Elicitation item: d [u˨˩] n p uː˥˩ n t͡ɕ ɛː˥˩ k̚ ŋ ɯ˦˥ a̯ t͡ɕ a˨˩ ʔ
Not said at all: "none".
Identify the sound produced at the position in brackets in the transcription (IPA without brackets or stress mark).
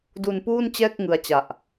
u˧